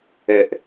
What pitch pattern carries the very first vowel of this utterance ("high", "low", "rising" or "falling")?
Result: low